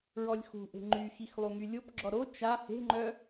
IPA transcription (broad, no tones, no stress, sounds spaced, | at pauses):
ɹ ɔ lʲ x ṳ ʔ e̤ ŋ͡ǃ y x i x lˠ u ŋ y lʲ o p ɡ͡ǁ ɔ ɾ o t͡ʃ a h e̤ ŋ͡ǃ œ